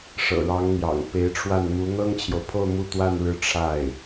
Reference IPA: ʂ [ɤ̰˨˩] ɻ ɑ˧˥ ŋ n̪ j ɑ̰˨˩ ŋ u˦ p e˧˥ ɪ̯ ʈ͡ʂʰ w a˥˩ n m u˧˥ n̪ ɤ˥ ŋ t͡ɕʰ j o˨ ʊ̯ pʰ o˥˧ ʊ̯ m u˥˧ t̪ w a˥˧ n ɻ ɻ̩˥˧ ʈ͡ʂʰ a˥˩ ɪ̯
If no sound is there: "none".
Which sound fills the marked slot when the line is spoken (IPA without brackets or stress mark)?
ɤ̰˨˩